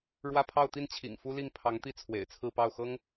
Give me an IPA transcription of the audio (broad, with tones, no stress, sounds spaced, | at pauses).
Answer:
ɻ w ä˥˧ pʰ ɑ˥˧ ʊ̯ t̪ i˥˩ n t͡ɕʰ ḭ˨˩ ŋ f u˥ l i˥˩ ŋ pʰ ɑ˧˥ ŋ t̪ i˥˩ t͡sʰ w ḛ˨˩ ɪ̯ t͡sʰ ɹ̩˥˧ p ɑ˥˩ ʊ̯ x ɤ˥ ŋ